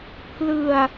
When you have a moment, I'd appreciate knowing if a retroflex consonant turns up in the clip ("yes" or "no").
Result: no